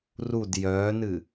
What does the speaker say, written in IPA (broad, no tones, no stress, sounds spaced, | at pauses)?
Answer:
r u d j œː n ɨ